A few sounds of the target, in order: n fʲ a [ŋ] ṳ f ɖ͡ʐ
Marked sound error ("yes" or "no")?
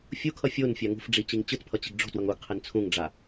no